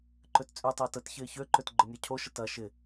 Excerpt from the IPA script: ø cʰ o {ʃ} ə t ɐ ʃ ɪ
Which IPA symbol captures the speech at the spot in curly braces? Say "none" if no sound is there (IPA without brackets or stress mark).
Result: ʃ